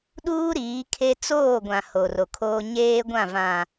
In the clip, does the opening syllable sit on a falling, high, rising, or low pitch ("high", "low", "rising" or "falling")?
high